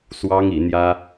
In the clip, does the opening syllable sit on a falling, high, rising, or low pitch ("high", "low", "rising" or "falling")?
high